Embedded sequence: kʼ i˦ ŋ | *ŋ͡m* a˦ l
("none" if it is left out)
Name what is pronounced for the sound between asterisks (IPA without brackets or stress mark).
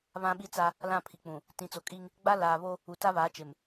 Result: ɡ͡b